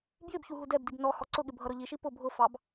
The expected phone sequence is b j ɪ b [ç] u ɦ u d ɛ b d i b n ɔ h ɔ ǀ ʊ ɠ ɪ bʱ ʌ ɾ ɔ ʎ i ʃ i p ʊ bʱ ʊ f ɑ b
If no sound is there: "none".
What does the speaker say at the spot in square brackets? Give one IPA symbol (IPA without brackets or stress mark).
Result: ç